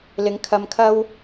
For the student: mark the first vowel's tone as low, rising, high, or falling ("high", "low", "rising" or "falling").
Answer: rising